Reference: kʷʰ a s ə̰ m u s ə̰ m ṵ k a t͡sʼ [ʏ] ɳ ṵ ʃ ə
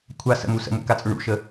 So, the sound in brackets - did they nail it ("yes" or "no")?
yes